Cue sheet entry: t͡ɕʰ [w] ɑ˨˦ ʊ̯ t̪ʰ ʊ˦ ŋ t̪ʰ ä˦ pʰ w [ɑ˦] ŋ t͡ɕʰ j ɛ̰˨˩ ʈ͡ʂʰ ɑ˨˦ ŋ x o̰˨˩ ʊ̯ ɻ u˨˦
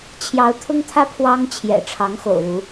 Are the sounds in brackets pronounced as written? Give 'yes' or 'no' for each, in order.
no, yes

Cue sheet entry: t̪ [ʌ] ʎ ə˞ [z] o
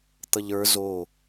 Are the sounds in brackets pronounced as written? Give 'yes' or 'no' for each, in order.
yes, yes

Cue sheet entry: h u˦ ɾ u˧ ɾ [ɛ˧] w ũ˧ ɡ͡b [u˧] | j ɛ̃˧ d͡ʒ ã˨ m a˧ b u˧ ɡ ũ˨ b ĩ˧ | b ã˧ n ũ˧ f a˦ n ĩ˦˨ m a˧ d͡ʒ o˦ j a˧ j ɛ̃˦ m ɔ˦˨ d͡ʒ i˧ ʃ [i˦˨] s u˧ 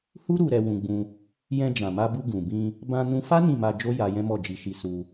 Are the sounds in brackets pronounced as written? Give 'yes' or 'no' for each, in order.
yes, no, no

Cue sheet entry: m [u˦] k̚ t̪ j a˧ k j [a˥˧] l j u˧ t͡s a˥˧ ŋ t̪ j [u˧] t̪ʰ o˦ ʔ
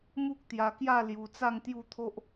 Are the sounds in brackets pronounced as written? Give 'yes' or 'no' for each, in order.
yes, yes, no

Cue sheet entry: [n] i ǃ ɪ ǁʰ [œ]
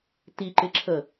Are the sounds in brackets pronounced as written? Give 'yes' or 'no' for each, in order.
no, no

